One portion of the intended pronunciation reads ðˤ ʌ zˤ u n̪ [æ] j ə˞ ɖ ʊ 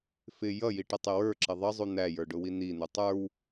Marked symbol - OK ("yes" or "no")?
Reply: yes